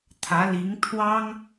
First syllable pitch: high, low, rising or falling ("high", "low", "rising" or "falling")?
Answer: rising